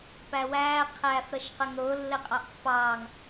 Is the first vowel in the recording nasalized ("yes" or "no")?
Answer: no